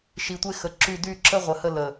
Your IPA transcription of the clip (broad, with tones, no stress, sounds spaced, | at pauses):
ʃ i˨ tʷ e˦ x ə˨ ǁ y˦˨ d y˦˨ ǁ ə˦ ʁʷ ə˨ h ə˦˨ l ə˨